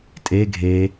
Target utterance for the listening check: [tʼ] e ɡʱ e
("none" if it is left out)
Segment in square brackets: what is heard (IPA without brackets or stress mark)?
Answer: tʼ